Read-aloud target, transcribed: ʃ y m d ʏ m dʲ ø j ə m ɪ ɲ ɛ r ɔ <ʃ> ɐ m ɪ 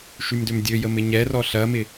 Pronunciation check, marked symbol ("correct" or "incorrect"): incorrect